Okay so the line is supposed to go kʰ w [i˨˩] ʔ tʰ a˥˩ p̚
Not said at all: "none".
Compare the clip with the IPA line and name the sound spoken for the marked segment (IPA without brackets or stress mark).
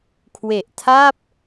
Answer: e˨˩